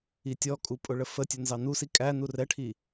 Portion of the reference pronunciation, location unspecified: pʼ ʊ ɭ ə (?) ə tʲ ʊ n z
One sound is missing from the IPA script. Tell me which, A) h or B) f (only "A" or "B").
B